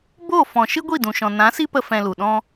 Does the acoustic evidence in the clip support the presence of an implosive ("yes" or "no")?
yes